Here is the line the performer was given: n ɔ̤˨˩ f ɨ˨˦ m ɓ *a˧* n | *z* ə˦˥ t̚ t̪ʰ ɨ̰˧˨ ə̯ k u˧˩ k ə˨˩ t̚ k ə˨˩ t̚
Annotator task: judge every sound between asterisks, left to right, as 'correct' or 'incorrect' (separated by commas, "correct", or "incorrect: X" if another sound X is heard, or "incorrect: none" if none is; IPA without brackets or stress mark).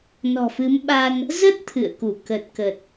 correct, correct